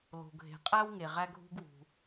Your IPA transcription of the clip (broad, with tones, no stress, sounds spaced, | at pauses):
l o̤˩ ɡʱ e̤˩ qʼ æ˥ w ŋ e˩ ʁ æ˥ ɡʱ ṳ˥ ɡ w ṳ˩